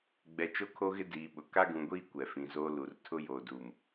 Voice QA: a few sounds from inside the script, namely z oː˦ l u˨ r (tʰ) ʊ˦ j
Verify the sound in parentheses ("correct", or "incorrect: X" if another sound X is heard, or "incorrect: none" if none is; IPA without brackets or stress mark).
correct